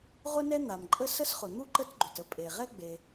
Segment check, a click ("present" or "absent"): present